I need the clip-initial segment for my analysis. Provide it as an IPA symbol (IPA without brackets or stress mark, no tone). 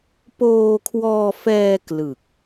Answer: p